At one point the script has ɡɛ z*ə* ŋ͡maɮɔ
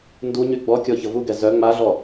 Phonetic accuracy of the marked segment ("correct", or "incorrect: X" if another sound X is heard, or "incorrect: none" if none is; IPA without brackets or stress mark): incorrect: œ